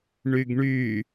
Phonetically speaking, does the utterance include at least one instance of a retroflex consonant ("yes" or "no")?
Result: yes